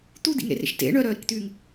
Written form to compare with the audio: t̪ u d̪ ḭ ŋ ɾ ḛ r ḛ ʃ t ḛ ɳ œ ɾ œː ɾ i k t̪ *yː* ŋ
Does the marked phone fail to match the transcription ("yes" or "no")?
no